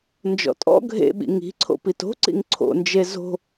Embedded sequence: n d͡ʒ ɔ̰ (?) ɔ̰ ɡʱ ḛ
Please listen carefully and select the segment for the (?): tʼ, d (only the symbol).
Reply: tʼ